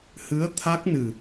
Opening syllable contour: rising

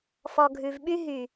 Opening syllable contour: low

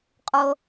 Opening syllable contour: low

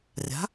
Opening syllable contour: rising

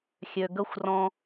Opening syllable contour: low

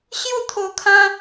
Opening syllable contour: falling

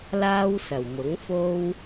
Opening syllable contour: high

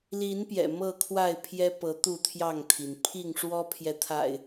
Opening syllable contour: rising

